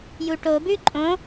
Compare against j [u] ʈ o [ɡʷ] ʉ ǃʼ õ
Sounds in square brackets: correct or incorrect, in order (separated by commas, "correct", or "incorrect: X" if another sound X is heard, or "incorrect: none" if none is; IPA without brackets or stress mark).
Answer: correct, incorrect: b